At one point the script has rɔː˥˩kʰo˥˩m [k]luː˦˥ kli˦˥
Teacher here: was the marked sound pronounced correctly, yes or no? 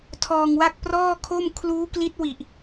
no